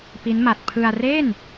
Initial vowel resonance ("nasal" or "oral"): oral